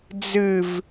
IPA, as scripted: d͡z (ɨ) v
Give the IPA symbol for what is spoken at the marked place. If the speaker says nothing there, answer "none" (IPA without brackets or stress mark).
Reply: ɨ